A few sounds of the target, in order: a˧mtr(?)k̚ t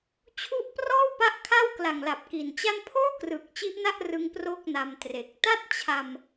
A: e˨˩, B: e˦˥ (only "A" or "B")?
A